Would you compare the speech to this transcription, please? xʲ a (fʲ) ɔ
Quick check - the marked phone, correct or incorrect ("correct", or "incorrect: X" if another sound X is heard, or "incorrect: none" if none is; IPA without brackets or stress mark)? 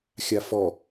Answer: incorrect: f